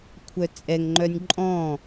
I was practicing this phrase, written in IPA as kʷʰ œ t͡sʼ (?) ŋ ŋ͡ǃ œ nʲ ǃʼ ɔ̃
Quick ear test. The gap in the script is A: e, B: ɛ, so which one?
B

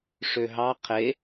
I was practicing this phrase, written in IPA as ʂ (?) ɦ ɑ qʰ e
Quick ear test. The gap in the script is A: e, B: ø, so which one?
B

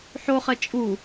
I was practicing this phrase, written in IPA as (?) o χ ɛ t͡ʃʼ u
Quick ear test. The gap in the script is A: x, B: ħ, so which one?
B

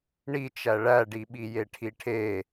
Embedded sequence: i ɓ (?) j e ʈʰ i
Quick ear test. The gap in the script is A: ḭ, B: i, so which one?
B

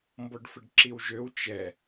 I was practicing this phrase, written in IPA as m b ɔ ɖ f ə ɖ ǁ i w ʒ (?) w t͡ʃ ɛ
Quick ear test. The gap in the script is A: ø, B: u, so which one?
A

